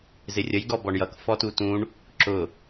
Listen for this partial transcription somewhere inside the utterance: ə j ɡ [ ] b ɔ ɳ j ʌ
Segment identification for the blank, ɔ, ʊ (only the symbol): ɔ